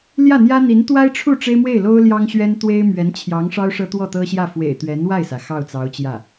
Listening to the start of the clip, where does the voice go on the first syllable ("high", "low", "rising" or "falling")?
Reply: falling